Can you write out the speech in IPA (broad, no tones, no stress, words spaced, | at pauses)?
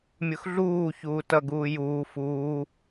mʲʊxɮuː çuːtʌ ɡuːjuː fuː